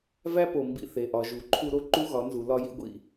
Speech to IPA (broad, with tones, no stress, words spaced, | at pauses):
væ˦po˨ mbḭ˧θe˨ʔɒ˨ʒu˨ ǃʰu˧ɾo˧ ǃu˦ɣɒ˨˦nzu˨ lɒ˦jḭ˦ɡʷḭ˧